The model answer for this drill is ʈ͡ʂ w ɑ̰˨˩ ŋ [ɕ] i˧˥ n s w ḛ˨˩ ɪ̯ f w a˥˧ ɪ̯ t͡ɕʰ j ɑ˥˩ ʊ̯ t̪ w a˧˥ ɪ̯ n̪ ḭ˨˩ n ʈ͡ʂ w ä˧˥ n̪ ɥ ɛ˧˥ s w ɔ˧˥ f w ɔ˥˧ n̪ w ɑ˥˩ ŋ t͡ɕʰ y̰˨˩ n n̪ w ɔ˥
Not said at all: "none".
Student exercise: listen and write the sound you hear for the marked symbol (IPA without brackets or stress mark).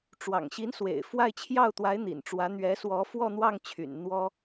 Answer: ɕ